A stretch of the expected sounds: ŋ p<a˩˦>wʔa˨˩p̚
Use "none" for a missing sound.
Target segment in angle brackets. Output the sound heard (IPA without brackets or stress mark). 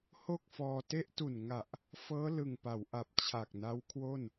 a˩˦